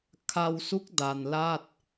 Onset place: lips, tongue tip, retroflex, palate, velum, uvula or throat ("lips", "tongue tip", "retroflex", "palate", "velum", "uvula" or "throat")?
velum